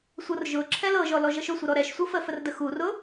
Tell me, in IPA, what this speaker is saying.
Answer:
sʷ ɤ r ʒ ʊ ǁʰ ɛ l ɤ ʒ ɔ l ɔ ʒ ɤ ʃ ʊ sʷ ə ɾ ɔ ɾ ɛ ʃ sʷ ɤ f ə f ə r d ə x u r ʊ

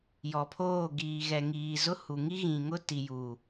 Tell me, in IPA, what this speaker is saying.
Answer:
j ɔ˨ pʰ oː˦˨ ɡ iː˨ ɣ ɛ˨ ŋ iː˨ z ʊ˦ h u˨ ŋ i˦ ɣ ĩ˨ ŋ ʊ˦ t i˨ j u˨

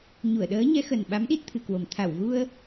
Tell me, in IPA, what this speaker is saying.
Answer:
ɲ u˧˩ ə̯ ɗ əː˨˦ ɲ ɛ˨˦ x ə˨˩ n ɓ a˨˦ m ɗ i˦˥ t̚ t̪ʰ ɨ˨˩ k w o˨˩ m t̪ʰ a˧˩ w ɣ u˧ ə̯

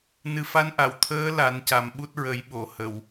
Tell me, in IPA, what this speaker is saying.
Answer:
n ɨ˨˩ f a˧ n ʔ a˨˩˨ w t̪ʰ əː˧˥ l a˨˩˦ n c a˨˩ m ɓ u˦˥ t̚ ɹ ə˨˩˦ j ɓ o˨˩˨ h ə˨˩˨ w

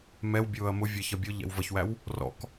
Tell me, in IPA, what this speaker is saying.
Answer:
m ɛ w bʲ ʊː ɐ̯ m ʊ vʲ ɛ ç ʌ bʲ ʊ ʎ ɛ̰ w v ʌ ç w æ w | r ɔ̰ k

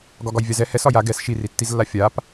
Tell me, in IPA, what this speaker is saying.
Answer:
ɡ ɒ ɡ ɒ j vʲ a z ɛ h ɛ s ɒ j a ɡ ɛ s ʃ i r i tː i z lː a fʲ a p

